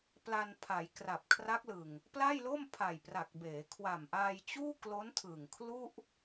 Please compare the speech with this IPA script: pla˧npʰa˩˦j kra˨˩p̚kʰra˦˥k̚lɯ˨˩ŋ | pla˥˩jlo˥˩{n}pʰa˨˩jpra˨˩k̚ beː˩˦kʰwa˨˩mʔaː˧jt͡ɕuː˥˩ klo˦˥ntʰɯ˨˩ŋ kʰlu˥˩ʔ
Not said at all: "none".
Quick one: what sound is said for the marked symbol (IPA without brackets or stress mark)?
m